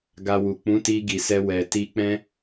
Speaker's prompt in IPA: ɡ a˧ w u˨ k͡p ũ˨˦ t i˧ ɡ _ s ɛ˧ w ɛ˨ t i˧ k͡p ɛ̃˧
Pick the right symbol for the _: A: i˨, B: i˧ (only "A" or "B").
A